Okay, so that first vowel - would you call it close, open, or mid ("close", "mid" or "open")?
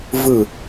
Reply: close